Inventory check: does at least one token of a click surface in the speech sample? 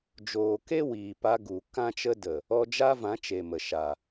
no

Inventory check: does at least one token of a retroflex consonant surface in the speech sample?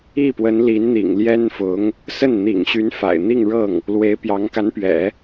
yes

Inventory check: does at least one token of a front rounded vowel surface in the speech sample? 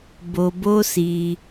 no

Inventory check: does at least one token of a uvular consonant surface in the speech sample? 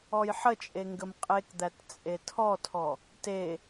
yes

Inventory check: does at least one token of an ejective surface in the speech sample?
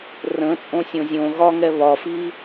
yes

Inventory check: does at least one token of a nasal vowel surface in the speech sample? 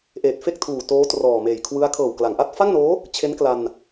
no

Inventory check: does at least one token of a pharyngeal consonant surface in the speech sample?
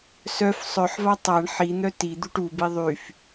yes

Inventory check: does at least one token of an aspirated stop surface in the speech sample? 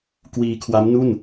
yes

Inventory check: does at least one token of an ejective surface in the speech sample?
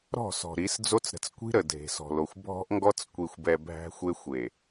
no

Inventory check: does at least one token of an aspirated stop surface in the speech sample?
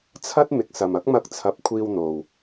yes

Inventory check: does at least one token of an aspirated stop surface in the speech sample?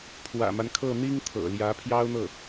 yes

